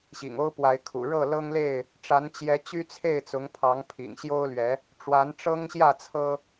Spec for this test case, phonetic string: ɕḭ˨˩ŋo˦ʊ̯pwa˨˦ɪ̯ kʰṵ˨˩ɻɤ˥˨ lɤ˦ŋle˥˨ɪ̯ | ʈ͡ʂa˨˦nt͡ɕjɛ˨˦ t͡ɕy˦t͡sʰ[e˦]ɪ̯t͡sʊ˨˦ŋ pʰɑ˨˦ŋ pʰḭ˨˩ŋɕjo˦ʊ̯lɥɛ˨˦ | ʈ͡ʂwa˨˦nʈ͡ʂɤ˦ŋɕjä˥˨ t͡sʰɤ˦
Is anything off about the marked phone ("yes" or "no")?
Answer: yes